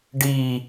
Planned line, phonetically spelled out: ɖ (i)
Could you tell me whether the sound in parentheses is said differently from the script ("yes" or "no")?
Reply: no